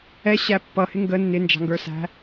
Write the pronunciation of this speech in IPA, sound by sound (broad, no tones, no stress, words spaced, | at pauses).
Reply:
ɛ ɕæpːʌhɪ ŋɡə nːɪnd͡ʒɑ̤ŋɡə˞sæ̤